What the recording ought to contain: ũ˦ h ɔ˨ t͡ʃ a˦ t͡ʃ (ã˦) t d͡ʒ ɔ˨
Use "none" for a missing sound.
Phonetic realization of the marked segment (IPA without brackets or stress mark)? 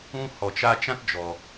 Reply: ã˦